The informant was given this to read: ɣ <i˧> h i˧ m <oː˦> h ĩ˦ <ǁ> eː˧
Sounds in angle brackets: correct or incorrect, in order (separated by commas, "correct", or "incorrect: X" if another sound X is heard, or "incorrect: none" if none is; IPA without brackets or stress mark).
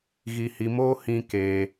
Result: correct, correct, incorrect: k